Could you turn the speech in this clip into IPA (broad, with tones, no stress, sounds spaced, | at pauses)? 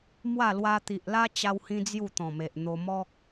m w a˥˧ l w a˧ t̪ i˨ ʔ l a˦ t͡ɕ a˦ w h ĩ˦ d͡z j u˥˧ t̪ ɔ̃˨˩ m e˨ ʔ n̪ o˧ m ɔ˦ k̚